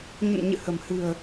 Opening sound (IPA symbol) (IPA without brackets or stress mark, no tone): ɲ